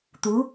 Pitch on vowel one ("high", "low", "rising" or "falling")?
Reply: rising